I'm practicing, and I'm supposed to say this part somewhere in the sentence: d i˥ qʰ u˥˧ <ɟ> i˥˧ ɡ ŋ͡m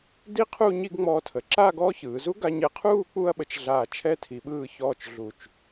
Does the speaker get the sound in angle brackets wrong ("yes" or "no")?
yes